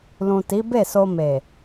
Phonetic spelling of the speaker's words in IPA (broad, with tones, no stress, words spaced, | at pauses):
lũ˨ti˨˦be˦˨so˧ me˨